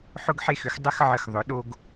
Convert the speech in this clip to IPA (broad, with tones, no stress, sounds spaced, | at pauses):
ħ ʊ˧ ɡ ħ e˧˩ x ʏ˩˧ x dˤ ə˧ x ʕ ə˧˩ x ðˤ ʊ˩˧ ɗ o˧ ɡ